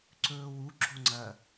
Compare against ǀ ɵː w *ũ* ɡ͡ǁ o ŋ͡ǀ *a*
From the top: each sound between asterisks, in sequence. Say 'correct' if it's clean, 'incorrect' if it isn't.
incorrect: u, incorrect: ɐ

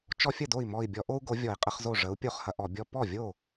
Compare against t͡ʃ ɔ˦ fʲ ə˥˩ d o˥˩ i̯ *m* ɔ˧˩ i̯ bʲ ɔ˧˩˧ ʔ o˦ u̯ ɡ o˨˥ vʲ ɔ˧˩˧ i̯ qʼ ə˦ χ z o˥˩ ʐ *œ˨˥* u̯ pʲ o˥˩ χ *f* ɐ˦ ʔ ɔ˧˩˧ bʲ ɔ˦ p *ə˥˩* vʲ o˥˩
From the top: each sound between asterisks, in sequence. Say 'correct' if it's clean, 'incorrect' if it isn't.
correct, incorrect: ə˨˥, incorrect: h, incorrect: ɔ˥˩

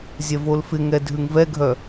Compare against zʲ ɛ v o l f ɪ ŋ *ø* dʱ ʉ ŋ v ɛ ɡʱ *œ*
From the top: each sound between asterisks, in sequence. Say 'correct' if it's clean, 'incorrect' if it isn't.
incorrect: ɛ, correct

